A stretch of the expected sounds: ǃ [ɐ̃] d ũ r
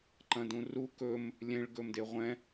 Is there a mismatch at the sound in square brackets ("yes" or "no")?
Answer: no